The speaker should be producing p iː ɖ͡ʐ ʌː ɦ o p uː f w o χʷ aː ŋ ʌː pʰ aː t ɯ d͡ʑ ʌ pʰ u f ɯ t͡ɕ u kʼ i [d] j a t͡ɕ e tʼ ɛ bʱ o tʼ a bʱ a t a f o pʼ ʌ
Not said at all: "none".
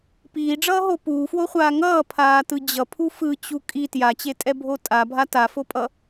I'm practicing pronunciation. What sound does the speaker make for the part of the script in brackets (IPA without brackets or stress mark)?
t